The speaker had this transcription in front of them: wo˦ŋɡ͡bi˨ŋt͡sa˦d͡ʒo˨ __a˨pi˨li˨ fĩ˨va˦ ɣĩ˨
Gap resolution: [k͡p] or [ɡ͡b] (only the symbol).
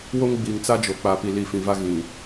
k͡p